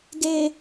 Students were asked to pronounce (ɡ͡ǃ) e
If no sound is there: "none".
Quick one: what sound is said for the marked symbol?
ɡ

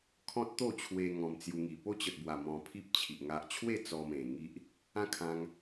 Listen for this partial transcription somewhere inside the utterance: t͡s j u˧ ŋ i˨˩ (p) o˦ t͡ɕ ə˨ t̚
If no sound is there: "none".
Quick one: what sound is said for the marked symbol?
p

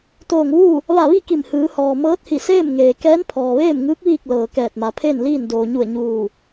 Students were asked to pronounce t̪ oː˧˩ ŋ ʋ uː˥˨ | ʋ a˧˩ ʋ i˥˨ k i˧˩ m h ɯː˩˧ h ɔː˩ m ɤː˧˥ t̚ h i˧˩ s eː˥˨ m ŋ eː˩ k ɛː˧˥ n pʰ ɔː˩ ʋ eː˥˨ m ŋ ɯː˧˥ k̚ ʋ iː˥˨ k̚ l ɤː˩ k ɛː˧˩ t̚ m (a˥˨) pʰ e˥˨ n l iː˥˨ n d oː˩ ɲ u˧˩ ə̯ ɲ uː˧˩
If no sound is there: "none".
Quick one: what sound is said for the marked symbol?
a˩˧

